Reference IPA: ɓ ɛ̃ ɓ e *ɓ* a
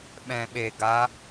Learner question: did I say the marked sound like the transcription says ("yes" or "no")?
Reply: no